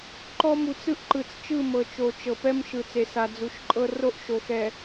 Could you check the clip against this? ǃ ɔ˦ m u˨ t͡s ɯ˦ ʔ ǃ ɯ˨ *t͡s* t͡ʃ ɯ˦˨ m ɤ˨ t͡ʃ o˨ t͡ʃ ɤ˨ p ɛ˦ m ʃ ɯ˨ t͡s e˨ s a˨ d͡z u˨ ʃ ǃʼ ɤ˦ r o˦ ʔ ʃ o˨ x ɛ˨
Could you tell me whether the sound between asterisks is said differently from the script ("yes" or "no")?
no